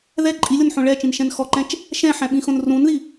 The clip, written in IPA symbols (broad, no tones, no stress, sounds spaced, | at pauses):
ð ɛ ǃʼ i lʲ ɔ n ħ õ ɭ ɛ t͡ʃ ĩ n ʃ ɛ̃ n x ɔ ǃ ɛ̃ t͡ʃ | ʃ ɛ̃ ħ ɛ̃ ɓ ĩ x õ n r ũ n ð i